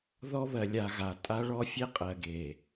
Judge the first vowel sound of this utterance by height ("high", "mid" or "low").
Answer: mid